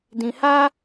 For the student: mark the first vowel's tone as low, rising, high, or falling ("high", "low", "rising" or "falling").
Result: low